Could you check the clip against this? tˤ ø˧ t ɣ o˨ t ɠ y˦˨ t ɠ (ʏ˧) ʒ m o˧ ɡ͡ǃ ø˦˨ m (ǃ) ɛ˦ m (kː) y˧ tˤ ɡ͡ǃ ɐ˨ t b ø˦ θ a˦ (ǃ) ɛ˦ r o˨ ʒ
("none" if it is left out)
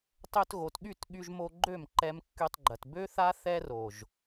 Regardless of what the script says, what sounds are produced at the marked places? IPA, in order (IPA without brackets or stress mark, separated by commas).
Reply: y˧, ǃ, kː, θ